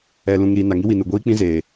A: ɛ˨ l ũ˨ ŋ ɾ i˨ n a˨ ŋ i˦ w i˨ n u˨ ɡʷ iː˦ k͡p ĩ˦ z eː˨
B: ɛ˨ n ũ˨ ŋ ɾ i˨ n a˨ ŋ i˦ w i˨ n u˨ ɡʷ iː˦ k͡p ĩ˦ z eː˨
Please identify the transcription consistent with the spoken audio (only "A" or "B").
A